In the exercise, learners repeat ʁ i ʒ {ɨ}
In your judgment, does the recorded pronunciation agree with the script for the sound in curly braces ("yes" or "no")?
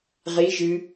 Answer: yes